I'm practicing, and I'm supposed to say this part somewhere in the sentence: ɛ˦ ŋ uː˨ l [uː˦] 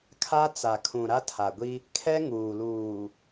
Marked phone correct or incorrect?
incorrect: uː˨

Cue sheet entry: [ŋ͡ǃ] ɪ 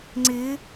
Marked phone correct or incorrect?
incorrect: ŋ͡ǀ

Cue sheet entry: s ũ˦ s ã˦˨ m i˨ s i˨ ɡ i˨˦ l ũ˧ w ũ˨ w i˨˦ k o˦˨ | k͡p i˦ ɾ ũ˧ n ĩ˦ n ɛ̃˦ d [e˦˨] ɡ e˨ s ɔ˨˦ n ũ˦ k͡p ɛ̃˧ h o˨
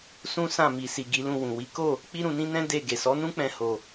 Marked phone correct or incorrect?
correct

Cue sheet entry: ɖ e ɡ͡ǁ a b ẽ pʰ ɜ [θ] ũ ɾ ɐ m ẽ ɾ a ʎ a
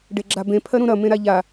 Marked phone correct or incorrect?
incorrect: ɾ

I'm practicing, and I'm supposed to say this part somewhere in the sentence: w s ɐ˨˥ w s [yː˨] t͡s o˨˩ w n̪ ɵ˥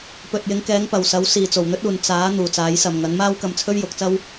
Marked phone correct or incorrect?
incorrect: iː˨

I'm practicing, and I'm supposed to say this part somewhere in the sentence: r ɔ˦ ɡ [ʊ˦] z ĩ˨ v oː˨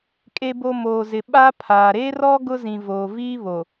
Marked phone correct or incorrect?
correct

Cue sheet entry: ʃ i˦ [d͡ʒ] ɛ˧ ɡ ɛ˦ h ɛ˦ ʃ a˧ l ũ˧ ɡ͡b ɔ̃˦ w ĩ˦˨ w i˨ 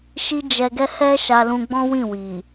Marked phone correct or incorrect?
correct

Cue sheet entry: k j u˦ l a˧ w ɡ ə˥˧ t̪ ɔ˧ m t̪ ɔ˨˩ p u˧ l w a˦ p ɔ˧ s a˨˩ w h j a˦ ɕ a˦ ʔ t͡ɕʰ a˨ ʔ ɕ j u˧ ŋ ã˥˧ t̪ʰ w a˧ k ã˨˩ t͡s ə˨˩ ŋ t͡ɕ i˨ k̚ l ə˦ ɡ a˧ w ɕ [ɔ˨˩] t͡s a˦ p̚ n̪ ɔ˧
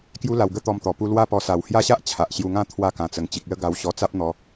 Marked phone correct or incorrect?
incorrect: ɔ˧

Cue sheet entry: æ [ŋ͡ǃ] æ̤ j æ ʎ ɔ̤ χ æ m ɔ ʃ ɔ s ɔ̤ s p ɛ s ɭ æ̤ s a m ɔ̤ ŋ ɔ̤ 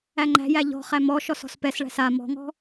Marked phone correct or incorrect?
correct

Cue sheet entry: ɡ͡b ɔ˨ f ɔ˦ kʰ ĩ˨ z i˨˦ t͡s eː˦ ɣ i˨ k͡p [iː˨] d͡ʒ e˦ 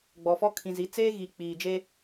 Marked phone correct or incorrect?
correct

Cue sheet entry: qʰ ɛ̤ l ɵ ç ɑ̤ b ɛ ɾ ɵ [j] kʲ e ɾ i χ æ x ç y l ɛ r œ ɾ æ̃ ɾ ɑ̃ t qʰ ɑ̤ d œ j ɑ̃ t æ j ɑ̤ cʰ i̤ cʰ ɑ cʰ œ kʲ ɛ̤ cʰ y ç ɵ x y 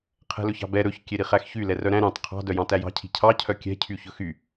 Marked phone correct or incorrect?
incorrect: ç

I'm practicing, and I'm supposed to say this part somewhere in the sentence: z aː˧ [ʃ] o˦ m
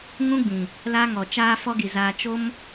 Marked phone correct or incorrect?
incorrect: t͡ʃ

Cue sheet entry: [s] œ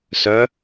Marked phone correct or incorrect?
correct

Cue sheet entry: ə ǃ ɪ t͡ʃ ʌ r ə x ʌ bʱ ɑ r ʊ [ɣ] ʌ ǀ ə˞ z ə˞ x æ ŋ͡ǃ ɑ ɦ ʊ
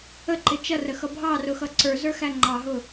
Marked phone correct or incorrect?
incorrect: x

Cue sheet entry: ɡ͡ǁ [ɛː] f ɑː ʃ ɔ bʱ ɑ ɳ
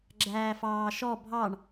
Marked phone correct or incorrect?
incorrect: æː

